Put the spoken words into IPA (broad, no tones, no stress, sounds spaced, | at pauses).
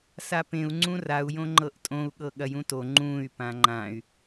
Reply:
s a p ẽ u̯ ŋ͡ǀ ũ r a u̯ j õ ŋ͡ǃ ɤ ʔ tʼ õ u̯ ɠ ɤ ɠ ɐ j ũ t o ŋ͡ǃ ũ y̯ p ã ŋ͡ǃ ã y̯